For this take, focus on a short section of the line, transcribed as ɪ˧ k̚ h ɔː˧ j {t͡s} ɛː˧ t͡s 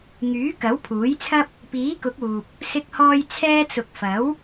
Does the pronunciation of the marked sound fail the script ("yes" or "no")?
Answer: yes